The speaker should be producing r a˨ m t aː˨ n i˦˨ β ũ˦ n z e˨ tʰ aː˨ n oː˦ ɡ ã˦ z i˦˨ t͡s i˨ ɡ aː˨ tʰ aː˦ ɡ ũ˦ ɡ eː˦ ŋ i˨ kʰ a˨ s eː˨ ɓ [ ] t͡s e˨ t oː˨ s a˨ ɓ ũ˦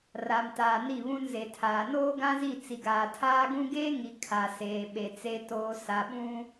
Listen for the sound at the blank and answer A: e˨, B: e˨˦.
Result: A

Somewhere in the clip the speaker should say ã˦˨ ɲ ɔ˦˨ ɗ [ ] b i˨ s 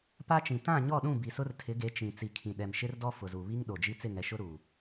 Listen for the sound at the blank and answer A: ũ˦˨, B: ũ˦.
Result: A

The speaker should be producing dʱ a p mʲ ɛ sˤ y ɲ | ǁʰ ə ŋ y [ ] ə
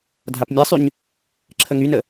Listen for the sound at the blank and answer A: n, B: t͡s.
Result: A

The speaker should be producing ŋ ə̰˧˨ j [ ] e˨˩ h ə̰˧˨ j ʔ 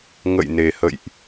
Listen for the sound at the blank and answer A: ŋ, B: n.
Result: B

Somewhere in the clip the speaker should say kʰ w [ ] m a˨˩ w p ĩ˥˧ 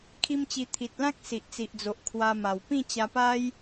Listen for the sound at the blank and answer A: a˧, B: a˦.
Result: A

